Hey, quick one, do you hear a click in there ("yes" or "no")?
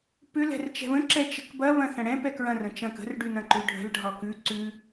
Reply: yes